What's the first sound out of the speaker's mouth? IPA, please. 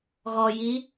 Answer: ɣ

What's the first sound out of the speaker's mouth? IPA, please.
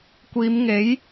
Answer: kʷ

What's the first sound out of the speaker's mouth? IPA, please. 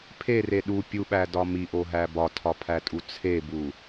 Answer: pʰ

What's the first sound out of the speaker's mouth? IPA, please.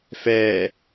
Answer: f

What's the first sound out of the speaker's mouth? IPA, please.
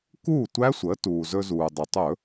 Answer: k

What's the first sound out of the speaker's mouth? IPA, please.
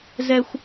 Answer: z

